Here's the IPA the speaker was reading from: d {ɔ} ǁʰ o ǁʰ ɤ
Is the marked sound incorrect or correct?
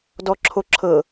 correct